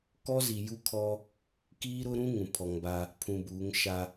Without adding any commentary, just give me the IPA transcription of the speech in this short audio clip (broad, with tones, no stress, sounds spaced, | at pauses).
k ɔ˦ z i˨ j u˦ kʰ ɔ˦ | k iː˦ ɾ ʊ˦ ɾ ũ˦ ŋ ũ˨ pʰ ɔ˨ ŋ b a˦ | pʰ ũ˨ b uː˨˦ ŋ ʃ a˦